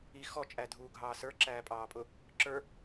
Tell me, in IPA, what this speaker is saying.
i x ɔ t͡ʃʼ æ dʱ uː ɡʱ ɑː s ə˞ ǁ æː pʼ ɑː pʼ ʊ | ǁ ə˞

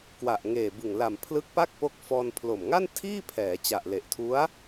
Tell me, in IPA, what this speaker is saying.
k w a˨˩ ʔ ŋ eː˨˩ b ɯ˨˩ ŋ l a˨˩ m pʰ l ɯ˦˥ k̚ p a˥˩ k̚ p o˦˥ k̚ f ɔː˧ n pʰ l o˨˩ m ŋ a˥˩ n tʰ iː˥˩ pʰ ɛː˩˦ t͡ɕ a˨˩ ʔ l e˨˩ ʔ tʰ u˦˥ a̯

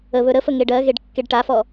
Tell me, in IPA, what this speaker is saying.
ə β ɵ ɾ ə f ə ŋ e ɖ ɜ ɣ e ɖ kː e ɖ ʈ a f ɔ

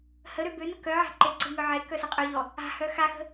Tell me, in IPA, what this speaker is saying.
h ə ɾ ø b ø n ə k œ ʕ a̤ ǃ e ǀ ə̤ ŋ œ ʕ e k œ s ə qʼ ø ʎ ɔ | a̤ h œ x a x ə̤

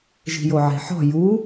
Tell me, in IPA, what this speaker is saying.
ʒ i̤ j o ʕ e̤ ħ ɔ̤ j u

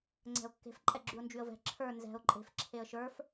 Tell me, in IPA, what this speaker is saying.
ŋ͡ǀ ɛ̤ ʊ̯ kː e̤ f ǃʼ ɛ ɡ͡ǁ y ʊ̯ n d͡ʒ y ə̯ v ɛ̤ ǁʰ ə˞ n z ɛ̤ ʊ̯ ǃʼ e̤ f ǁʰ e ə̯ ʃ ə˞ f

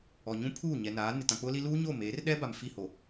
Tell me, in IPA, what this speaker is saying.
ɔ˨ ɲ ũ˦ pʰ uː˦˨ ɲ ɛ˨ n aː˨˦ n ɪ˨ t ã˨ k͡p ʊ˦ l i˦ l uː˦ ɲ o˦˨ m eː˨˦ r ɗ ɛ˦ b a˨ m f i˦˨ h o˨

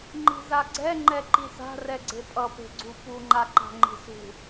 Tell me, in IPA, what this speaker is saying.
ŋ͡ǃ i̤ z a ɡ͡ǀ ɛ ŋ͡ǃ ɛ ǃ i s a̤ r ɛ ɡ͡ǀ e pʼ ʌ p e̤ ɡ͡ǀ u p u ŋ͡ǃ a ǃ a̤ ŋ͡ǃ i̤ s ṳ

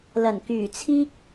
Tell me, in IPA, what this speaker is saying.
l ɐ˨˩ n k yː˨˩ t͡sʰ iː˥ k̚

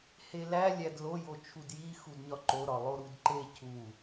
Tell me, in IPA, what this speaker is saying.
h e l æ lʲ æ d l o j o t͡ʃʰ u d j i x u d ɲ ɒ ǃ o ɾ ɒ lˠ o ɾ u d ǃ e cʰ u

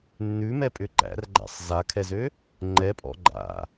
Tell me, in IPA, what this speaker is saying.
nː ʉ m ɛ pʼ ʏ ǃ æ̰ r ɡ͡ǃ æ̰ sˤ z a kʰ ɛ z ø | ŋ͡ǃ ɛ pʼ ɔ̰ ɡ͡ǃ a̰

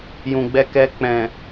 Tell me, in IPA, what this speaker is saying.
j ũ˨ ɡ͡b ɛ˧ k ɛ˧ k͡p ɛ̃˨

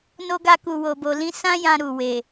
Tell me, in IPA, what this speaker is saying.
n o˦ ɡ a˦ k u˧ w o˧ b o˧ l ĩ˦ s ã˦ j ã˧ ɾ u˨ w e˨

